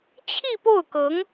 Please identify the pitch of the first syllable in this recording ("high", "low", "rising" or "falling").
falling